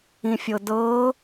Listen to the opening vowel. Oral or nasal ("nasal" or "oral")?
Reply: nasal